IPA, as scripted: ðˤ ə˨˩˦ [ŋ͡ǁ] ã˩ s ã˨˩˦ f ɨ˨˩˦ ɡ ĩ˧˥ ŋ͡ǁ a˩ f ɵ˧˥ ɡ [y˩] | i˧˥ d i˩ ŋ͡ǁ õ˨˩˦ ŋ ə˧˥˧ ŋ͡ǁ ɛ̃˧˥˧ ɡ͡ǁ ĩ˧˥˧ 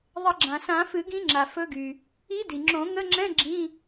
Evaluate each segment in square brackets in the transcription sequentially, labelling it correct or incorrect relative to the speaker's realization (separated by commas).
incorrect, correct